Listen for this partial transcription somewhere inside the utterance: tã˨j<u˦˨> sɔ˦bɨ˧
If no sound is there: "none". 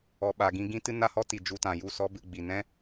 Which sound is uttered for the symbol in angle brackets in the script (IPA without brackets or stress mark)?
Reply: u˦˨